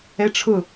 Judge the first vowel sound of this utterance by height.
mid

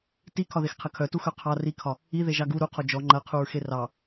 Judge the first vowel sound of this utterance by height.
high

